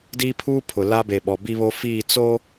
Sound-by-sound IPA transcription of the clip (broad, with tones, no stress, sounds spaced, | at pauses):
d iː˦ pʰ uː˦ pʰ ʊ˨ l a˦ b e˨ ɓ ɔ˨ b i˦ β o˦ f iː˦˨ t͡s o˦